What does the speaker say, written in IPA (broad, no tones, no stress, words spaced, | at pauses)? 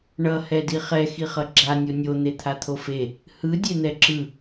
ɳʌ hɛdiχɛ xiχʌɡ͡ǁa nʲonʲo n̪et̪ʰat̪ʰofe | hɯ dʲen̪ɛǁɯ